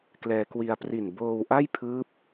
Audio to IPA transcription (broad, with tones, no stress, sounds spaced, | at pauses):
k l ɛː˧ k w i˧ a̯ p r i˨˩ n b oː˧ w ʔ a˥˩ j pʰ ɯː˦˥ p̚